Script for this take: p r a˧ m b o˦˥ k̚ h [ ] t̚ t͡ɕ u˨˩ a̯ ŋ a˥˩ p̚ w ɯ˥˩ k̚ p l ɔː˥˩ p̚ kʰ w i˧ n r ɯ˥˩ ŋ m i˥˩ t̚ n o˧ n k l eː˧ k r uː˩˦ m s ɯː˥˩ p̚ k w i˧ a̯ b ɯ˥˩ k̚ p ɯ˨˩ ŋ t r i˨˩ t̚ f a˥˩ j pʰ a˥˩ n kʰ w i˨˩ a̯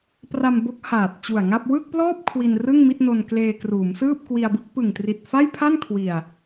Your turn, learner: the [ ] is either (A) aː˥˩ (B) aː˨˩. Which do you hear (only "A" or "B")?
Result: B